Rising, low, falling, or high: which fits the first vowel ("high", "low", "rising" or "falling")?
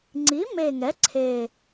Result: rising